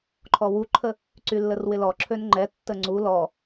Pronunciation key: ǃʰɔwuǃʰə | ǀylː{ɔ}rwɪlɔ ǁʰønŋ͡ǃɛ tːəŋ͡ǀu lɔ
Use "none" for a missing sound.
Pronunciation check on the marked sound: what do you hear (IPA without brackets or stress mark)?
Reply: ə